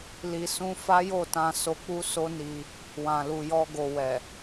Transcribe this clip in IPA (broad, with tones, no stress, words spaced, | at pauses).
li˧sũ˦ fa˦jo˦˨tã˧so˧ k͡pu˦so˦ni˧ | wã˨lu˨jɔ˧ɡo˨ wɛ˨